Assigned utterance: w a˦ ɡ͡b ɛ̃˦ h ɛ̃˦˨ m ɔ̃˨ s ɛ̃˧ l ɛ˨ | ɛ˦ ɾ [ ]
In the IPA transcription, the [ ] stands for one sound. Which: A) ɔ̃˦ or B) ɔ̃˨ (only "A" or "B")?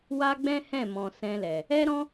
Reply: A